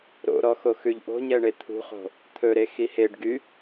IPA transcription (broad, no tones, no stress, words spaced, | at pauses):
ɾo̰ɾɔ xoxʉʎʔo̤ɲɛ ɳet̪ʰṳχo̤ | t̪ʰɵɾe xiheɖɡy